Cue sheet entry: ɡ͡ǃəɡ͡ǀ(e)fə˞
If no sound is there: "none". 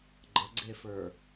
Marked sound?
e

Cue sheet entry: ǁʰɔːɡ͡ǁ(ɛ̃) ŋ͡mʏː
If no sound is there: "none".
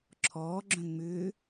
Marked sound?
œ̃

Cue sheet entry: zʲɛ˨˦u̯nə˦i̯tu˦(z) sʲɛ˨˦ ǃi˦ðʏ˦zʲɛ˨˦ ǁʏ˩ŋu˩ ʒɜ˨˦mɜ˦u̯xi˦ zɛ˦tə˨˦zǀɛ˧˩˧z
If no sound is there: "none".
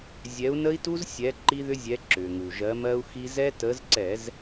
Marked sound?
z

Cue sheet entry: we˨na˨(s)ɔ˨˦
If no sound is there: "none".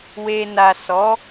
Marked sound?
s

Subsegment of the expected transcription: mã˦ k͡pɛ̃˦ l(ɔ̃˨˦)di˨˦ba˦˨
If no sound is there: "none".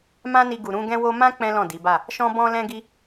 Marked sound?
ɔ̃˦˨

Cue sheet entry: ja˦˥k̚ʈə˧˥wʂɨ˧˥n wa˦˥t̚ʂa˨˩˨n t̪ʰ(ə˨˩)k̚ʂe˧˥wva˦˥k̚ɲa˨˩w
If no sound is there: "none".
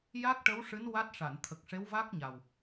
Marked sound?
ə˨˩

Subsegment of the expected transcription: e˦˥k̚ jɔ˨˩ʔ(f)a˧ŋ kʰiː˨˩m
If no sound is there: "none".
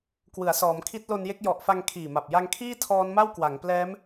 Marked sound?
f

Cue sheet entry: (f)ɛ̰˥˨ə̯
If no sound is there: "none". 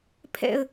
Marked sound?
pʰ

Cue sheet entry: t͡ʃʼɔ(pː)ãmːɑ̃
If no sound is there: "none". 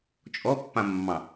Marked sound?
pː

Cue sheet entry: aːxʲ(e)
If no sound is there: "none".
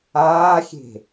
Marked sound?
e̤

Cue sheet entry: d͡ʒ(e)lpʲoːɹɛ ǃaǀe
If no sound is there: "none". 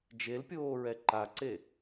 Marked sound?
e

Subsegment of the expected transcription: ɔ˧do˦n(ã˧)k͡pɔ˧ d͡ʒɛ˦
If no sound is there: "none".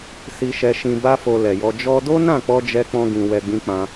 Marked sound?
ã˦˨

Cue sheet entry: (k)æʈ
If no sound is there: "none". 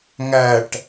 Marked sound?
ŋ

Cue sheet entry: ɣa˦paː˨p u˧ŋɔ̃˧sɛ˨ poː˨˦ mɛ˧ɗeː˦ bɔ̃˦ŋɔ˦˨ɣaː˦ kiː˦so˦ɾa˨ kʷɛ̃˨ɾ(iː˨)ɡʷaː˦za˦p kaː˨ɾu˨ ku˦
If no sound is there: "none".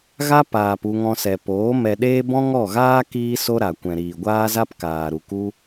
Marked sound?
iː˨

